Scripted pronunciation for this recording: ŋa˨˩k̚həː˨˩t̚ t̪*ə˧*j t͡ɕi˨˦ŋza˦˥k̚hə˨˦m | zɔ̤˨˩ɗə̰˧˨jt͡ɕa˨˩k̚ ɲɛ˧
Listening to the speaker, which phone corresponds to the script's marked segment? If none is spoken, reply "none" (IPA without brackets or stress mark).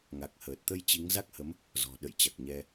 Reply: ə˧